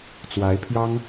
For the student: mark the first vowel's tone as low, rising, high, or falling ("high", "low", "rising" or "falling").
rising